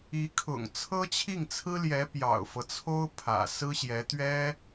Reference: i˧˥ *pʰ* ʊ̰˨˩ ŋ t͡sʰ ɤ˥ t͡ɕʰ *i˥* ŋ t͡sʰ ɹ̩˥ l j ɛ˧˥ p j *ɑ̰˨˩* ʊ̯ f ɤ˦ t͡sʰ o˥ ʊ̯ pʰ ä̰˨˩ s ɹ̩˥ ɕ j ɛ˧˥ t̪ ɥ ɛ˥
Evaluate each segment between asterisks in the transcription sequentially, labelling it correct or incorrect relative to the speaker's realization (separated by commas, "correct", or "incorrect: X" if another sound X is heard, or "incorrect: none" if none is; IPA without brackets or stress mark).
incorrect: kʰ, incorrect: i˥˩, correct